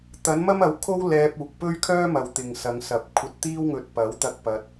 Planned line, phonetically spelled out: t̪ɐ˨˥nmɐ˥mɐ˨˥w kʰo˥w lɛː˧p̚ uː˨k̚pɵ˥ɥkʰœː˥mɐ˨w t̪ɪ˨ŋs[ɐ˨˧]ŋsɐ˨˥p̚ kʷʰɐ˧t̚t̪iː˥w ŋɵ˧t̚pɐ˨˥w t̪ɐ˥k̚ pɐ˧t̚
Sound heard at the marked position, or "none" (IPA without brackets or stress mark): ɐ˨˧